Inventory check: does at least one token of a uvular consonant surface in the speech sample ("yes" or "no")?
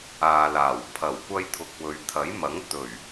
no